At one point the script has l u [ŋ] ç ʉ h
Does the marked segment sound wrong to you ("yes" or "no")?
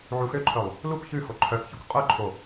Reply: yes